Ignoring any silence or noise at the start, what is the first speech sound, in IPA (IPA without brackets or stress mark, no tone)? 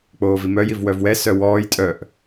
k͡p